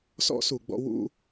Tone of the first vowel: high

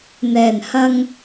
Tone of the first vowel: low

